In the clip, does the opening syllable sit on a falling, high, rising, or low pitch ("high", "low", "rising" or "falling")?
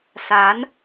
rising